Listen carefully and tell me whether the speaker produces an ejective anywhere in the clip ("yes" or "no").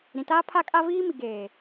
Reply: yes